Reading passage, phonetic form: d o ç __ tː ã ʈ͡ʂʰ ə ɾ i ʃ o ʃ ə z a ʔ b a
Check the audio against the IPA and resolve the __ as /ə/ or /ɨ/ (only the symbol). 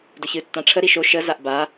ɨ